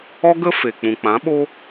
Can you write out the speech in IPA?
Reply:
ɔ˦ɡə˦ fe˨ k͡pũ˨k͡pã˨˦ɓo˦

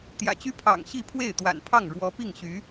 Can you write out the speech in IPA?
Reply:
t̪jä̰˨˩t͡ɕy˥ pʰɑ̰˨˩ŋ ɕi˥˧pʰwe˥˩ɪ̯t̪wa̰˨˩npʰɑ˥˩ŋ ɻwɔ˧˥ pi˥˩ŋ ɕy˧˥

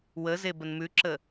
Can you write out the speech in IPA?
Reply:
wəze bənmʉǁə

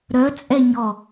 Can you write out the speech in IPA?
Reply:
ɾœt͡sʼɛ ɲɔ

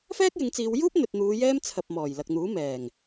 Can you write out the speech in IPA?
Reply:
fɛː˥k̚jɪ˨˧ŋt͡siː˨˧w juː˥p̚n̪ɵ˨t̚n̪uː˨˧ jɛː˥m t͡sʰɐ˨p̚mɔː˨˩j lɐ˨k̚n̪uː˨˥ mɛː˨˩ŋ

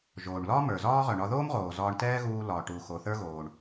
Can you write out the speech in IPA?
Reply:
ʒoː˩ɳlɒ˥ mə˞˩zɒː˥ʁœ˩ ɳɒ˧ðoː˥mʁoː˩ zɒː˧ɳtɛː˥ɣuː˧ lɒ˩ʈu˩ xo˩θə˞˥ ɣoː˩ɳ

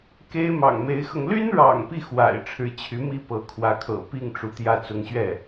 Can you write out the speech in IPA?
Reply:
ke˥ɪ̯ mɑ̰˨˩ŋme˧˥ɪ̯xɤ˧ŋ ly˥nɻɑ̰˨˩ŋ pi˥˩ xwa̰˨˩ɪ̯ʈ͡ʂʰɻ̩˧˥t͡ɕʰy˧˥ mi˥pɤ˧˥kʰwä˧˥kʰɤ̰˨˩ pi˥˩ŋ ʈ͡ʂu˧˥t̪jä˥˩ t͡sʊ˧˥ŋɕɥɛ˥˩

